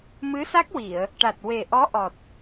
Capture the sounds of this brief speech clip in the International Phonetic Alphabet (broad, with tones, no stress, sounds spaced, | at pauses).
m ɨ˧˥ s a˦˥ k̚ w i˨˩˨ ə̯ | ʈ a˨˩ t̚ w e˨˩ ʔ ɔ˧˥ ʔ ɔ˨˩ t̚